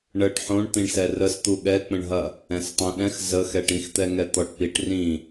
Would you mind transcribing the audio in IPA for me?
ɳəʈ ħõɳ t̪ĩɳsɛrəst̪u ɠɛk͡pə̃ɳɦɐ | ɛ̃stˤõɗɛ̃x zəxɛ ʈĩxt̪ɛŋɛ t̪ɔʈpiʈ rĩ

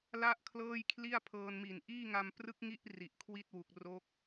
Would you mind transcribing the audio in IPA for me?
la˥˩ʔ kʰlɤː˥˩jkʰli˥˩a̯ pʰɤː˧nmi˨˩n ʔiː˥˩ŋa˧m prɯ˦˥k̚ŋi˦˥ʔ ri˨˩ʔkʰwi˥˩t̚wu˨˩k̚ ro˦˥k̚

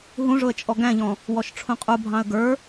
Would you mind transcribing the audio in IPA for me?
ɦũʐʊə̯t͡ʃʼɔ ɡæ̃ʎɔ̃ | wɔʃʈ͡ʂʰũqʼubʱɑ̃ə̯ ɡə˞

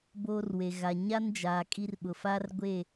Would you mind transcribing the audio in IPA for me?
boː˦rwe˨ ɣa˨ɲa˦nd͡ʒaː˨ kʼi˦rɓʊ˨ fa˦rɡʷe˦˨

